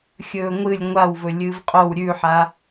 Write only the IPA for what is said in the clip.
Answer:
xʲ ɵː ŋʷ ɨ lʲ ŋʷ a w v ɵ lʲ ɨː v qʼ o w ɾʲ ʉ ħ a

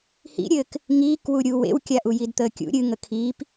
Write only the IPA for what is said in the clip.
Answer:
h ḭ ɾʲ ɘː k | ŋ iː k w u ɾʲ u w ḛ w kʲ a ʔ u j i d t̪ əː kʲ ṵ ɾʲ ɨ ŋ ə kʰ iː p

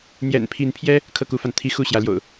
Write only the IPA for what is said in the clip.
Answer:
n̪ j ɛ̰˨˩ n pʰ i˨˦ n pʰ j ɛ˦ | kʰ ɤ˥˨ k u˦ f a˨ n t̪ʰ i˦ x u˥˨ ɕ j ä˨˦ l j o̰˨˩ ʊ̯

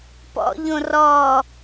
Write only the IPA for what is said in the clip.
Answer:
p ɔ̰ ʎ õ r ɔ

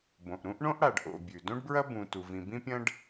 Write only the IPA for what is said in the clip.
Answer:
b õ˩ ʔ ɾ ũ˥ ʔ ɳ õ˥ ʔ ɽ a˩ ɖ ʔ o̰˩ bʲ ʉ˩ d õ˥ ɖ b ɹ ɐ˥ b ũ˩ t u˩ v ĩ˩ b ĩ˥ pʲ ɐ̃˥ ɖ

